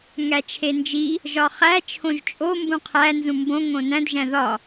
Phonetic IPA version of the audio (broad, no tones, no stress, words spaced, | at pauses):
ŋæt͡ʃʰend͡ʒi | ʒɒχæ t͡ʃʰõʒt͡ʃʼo mbũqʰæ nzũmbõ ŋõnæ̃d ʒæ̃ðɒ